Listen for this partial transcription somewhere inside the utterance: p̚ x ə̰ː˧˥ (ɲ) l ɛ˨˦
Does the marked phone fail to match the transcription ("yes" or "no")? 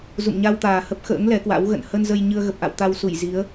yes